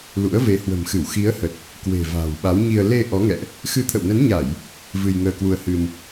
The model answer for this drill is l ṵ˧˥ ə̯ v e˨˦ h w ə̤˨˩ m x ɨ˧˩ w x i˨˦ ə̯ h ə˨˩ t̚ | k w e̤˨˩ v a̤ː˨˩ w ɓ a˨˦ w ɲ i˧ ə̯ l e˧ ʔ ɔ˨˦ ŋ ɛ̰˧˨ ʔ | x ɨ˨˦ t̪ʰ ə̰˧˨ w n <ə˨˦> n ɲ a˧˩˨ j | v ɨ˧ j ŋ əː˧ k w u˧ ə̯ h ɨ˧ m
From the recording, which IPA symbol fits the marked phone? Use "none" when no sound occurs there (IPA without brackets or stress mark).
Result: ə˨˦